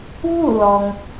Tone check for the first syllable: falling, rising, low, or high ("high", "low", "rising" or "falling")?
falling